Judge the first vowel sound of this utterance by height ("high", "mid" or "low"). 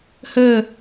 mid